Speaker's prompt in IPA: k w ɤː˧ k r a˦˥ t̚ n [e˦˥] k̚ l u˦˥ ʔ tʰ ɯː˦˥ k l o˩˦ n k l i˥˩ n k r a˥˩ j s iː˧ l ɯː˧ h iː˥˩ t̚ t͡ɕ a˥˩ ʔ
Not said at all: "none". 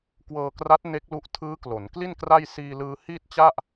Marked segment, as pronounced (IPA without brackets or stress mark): e˦˥